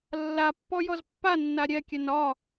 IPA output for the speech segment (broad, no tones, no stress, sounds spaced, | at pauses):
lː a pː ɔ j ɔ z pː a nː a ɾʲ ɛ kʲ ɛ n ɒ